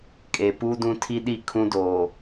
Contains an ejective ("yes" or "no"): yes